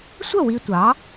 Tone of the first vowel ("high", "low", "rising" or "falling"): falling